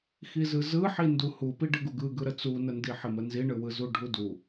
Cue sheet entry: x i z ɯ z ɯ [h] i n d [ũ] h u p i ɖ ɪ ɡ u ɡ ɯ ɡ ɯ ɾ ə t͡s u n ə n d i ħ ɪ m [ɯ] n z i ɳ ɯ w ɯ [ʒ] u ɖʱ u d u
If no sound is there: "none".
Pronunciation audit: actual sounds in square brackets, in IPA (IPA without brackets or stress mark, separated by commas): ħ, u, ə, z